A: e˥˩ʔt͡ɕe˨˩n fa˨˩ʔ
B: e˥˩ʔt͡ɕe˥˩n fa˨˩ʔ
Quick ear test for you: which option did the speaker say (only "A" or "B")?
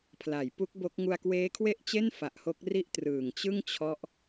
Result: B